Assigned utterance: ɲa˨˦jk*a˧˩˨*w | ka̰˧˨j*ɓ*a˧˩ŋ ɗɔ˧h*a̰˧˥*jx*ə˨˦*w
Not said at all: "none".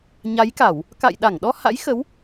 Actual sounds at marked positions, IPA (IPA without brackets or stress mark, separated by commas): a˧˩˨, ɗ, a̰˧˥, ə˨˦